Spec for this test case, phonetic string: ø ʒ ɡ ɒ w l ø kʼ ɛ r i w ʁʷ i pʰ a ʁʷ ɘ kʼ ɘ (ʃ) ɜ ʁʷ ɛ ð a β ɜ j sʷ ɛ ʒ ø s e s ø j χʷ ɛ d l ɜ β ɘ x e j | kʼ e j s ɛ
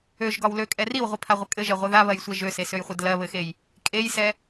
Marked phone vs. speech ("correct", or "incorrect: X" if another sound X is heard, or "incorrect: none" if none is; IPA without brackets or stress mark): incorrect: ʒ